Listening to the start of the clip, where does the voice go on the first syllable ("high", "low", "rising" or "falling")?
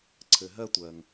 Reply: low